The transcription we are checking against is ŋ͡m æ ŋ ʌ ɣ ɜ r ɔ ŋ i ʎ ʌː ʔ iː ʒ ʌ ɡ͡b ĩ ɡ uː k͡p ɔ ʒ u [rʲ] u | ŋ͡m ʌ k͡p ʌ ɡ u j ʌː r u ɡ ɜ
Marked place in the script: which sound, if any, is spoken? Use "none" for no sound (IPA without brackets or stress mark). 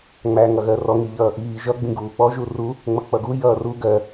r